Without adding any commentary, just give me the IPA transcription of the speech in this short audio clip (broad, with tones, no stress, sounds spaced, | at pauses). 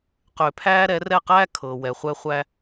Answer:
q ʏː˨ pʰ æː˧ ɾ ɛ˨˦ r ɛ˦˨ q æː˦ kʰ ɤː˨ w ɛ˨ χʷ ɛ˧ χʷ æ˧